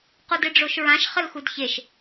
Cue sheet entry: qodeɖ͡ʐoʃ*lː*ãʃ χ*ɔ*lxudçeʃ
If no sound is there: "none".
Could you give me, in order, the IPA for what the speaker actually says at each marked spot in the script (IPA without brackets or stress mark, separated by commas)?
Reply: ɹ, ə